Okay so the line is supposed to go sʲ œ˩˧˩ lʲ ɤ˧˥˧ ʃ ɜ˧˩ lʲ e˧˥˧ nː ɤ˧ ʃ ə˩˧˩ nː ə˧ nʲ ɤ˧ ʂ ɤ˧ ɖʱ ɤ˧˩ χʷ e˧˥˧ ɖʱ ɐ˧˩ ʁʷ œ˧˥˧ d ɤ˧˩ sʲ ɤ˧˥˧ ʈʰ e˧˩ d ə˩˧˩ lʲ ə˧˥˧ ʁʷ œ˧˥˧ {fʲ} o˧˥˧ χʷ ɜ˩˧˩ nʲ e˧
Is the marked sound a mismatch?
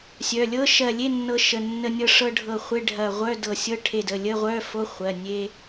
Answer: yes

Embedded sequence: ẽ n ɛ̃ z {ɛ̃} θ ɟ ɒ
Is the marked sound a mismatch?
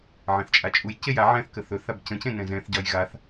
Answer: no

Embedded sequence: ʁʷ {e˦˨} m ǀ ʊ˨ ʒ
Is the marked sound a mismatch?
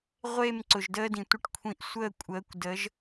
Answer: no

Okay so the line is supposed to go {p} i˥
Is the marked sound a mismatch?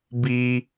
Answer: yes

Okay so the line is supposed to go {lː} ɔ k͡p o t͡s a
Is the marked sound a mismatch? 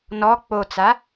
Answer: yes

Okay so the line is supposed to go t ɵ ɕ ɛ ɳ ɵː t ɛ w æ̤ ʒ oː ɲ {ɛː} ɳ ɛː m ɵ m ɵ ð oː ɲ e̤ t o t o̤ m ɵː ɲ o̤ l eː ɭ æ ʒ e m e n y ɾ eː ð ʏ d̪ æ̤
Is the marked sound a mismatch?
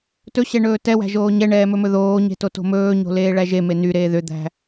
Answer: yes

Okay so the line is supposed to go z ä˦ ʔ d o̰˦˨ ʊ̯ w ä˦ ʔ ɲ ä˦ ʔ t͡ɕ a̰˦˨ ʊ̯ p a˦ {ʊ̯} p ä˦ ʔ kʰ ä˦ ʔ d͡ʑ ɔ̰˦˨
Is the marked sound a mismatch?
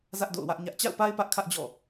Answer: yes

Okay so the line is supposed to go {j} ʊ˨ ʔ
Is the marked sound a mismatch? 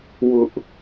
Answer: yes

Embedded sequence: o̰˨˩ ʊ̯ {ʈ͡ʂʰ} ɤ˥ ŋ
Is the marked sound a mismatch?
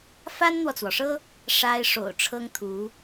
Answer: no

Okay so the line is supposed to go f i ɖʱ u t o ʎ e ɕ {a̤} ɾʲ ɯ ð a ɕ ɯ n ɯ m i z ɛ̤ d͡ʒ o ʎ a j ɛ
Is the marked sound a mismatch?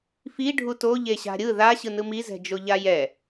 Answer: no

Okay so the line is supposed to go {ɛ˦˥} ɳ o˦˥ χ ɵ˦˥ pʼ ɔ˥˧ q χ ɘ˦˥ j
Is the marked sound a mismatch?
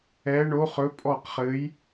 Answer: no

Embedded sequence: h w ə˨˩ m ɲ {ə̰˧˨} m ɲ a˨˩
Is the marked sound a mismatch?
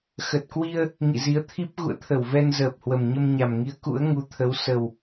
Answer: yes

